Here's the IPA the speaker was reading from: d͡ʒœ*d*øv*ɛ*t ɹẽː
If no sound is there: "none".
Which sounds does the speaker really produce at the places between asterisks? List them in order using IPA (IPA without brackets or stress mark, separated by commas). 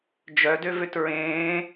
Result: d, ø